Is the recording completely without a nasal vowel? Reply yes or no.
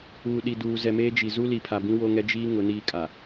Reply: no